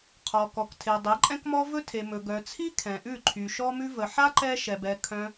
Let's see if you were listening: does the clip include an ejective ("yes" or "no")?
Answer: yes